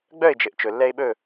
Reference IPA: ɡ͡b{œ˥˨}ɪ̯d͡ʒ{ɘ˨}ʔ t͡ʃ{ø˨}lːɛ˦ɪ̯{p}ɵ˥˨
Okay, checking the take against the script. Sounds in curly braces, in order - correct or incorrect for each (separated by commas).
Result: correct, correct, incorrect, incorrect